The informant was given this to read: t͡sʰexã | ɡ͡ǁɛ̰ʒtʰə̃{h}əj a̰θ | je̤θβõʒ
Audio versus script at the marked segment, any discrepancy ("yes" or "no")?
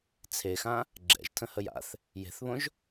no